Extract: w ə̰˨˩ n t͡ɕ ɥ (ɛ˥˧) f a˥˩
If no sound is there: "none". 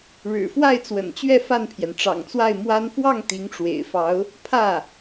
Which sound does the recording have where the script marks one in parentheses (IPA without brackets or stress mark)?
ɛ˥˧